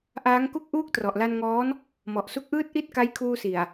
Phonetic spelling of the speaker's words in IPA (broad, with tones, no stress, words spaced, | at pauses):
ʔaː˦˥ŋku˥˩k̚ʔuː˥˩k̚ trɔ˨˩ʔla˧nŋɔː˦˥n | mɔ˨˩ʔsu˦˥k̚ʔɯː˥˩t̚ ʔi˥˩t̚ka˦˥jkʰuː˧si˨˩a̯